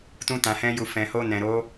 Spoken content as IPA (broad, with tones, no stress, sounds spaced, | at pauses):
t ũ˧ t ã˨ h ɛ̃˧ j u˨ f ɛ̃˨ h o˧ n ɛ̃˨ ɾ o˨˦